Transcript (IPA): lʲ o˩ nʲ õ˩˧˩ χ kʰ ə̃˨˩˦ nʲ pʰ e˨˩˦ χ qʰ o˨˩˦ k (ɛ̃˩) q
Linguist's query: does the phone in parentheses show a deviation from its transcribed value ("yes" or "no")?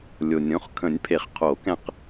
yes